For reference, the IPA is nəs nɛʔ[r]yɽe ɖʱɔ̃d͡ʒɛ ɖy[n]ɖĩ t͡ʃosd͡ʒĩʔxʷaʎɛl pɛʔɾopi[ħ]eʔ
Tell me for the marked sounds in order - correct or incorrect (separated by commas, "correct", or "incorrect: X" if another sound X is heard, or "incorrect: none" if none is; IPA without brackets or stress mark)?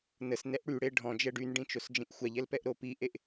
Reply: incorrect: ɽ, correct, incorrect: ʔ